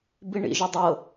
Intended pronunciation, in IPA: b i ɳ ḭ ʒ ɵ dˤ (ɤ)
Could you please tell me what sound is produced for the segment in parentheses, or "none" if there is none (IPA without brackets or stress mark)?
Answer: ɤ